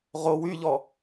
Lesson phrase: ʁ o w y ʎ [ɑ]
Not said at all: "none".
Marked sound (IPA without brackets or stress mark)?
ɔ